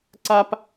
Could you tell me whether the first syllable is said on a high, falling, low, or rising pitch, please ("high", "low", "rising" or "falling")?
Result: high